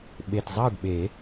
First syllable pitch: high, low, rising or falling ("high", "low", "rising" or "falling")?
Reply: low